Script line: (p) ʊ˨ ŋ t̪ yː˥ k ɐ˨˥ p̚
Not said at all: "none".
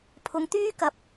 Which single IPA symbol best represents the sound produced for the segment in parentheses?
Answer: pʰ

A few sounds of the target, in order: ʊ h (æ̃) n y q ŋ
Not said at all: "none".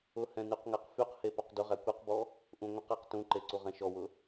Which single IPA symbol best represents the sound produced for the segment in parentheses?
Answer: ɛ̃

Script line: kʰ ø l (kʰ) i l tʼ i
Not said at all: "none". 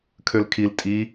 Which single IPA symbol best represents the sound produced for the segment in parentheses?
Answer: kʰ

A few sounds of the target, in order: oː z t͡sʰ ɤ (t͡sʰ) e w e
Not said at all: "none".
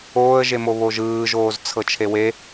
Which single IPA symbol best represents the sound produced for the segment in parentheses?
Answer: t͡ʃʰ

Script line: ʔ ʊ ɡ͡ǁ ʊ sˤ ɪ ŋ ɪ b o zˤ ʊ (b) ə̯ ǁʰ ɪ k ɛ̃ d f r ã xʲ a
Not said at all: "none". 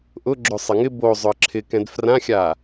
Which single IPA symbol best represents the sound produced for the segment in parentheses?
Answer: none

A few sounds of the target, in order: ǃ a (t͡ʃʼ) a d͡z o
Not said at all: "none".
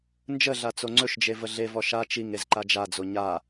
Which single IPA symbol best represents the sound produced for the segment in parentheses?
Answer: d͡ʒ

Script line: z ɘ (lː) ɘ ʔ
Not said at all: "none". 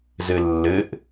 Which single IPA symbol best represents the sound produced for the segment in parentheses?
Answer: lː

